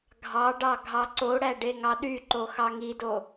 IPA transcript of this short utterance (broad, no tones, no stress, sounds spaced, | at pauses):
ɡʱ ɑ ɖ ɑ ɡʱ ɑ ǀ o ɽ æ ɖ e ŋ ɑ ɗ y ǃ o x ɑ ŋ i d o